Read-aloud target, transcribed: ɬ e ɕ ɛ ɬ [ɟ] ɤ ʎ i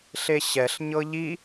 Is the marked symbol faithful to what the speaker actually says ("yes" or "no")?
no